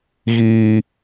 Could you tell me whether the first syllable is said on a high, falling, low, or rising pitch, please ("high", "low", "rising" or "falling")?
high